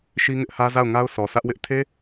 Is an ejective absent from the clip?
yes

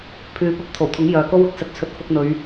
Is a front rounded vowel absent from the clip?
no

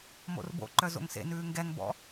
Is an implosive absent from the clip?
yes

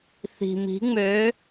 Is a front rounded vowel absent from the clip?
no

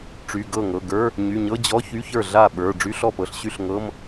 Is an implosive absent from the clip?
no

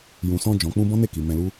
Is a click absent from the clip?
yes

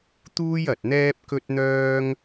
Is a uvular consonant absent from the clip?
yes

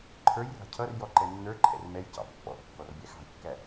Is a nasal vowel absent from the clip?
yes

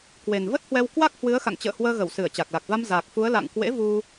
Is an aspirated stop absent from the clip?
yes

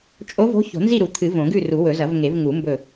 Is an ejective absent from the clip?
no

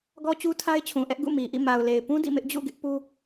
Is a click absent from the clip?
yes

